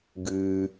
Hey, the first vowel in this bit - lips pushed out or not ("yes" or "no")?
no